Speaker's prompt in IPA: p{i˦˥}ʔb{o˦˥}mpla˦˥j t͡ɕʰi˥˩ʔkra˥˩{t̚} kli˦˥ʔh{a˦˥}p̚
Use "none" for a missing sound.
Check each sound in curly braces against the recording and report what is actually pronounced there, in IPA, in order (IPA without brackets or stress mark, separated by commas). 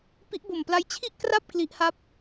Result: i˦˥, o˨˩, p̚, a˥˩